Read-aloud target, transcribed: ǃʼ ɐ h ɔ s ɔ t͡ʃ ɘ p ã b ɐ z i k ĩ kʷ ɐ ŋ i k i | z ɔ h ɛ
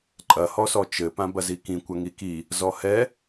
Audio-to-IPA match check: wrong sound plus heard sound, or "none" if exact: none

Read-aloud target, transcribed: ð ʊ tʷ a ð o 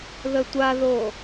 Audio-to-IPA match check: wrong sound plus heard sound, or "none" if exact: ʊ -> ə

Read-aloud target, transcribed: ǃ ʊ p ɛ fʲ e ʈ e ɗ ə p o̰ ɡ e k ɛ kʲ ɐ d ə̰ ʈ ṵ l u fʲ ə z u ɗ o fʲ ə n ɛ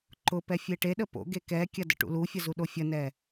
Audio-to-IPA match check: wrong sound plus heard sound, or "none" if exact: none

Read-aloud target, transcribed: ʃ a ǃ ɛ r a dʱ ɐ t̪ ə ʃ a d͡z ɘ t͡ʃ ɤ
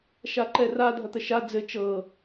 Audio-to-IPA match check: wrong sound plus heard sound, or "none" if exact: none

